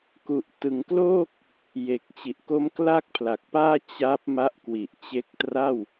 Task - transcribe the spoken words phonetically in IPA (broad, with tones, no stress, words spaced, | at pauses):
ku˨˩ʔ tɯ˩˦ŋkloː˥˩k̚ | je˨˩k̚t͡ɕi˨˩ʔ ko˦˥mkla˥˩k̚pʰla˨˩k̚paː˥˩ t͡ɕa˦˥p̚ ma˦˥ʔkwi˨˩ʔt͡ɕe˦˥k̚ tra˥˩w